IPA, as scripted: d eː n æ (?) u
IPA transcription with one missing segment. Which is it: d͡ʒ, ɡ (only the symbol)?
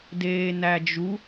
d͡ʒ